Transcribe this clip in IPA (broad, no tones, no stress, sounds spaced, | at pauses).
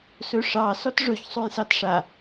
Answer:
s ɵ ʂ ɑ s ɔ t ʐ ɵ ç sˤ u j s ɑ t ʂ a